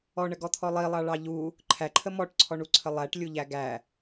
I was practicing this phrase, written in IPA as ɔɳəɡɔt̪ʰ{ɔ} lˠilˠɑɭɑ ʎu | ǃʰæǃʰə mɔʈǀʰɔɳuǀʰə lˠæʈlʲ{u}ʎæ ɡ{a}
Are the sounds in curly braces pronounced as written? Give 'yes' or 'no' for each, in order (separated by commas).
yes, yes, no